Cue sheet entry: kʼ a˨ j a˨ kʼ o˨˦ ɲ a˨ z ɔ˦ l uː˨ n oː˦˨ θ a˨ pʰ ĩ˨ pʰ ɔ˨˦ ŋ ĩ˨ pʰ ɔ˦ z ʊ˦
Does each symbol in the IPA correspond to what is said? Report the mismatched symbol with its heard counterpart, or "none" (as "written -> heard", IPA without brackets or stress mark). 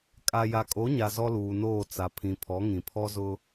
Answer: θ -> t͡s